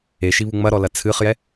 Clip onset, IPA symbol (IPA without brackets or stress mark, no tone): e